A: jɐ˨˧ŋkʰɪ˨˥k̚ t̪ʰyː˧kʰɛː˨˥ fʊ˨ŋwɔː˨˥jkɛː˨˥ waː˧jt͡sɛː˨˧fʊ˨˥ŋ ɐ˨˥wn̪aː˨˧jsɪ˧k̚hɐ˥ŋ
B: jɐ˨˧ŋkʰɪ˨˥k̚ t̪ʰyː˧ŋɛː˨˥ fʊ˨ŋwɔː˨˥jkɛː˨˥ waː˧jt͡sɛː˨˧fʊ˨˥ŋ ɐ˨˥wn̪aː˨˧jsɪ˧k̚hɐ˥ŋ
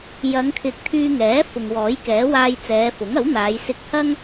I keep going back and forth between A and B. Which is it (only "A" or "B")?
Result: B